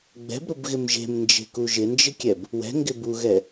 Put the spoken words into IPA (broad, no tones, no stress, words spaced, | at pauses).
ɡ͡bɛ̤bɾʊbɣɪm ʒe̤mnd͡ʒe̤ku ʒɪnd͡ʒɪkʲɛb | wɛ̤ŋɡɪ buɣɛ